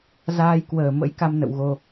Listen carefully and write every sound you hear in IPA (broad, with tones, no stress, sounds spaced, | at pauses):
z aː˧ j k w əː˨˩ m ə̰˧˥ j k a˧ m n ə̰˧˨ w ɣ o˧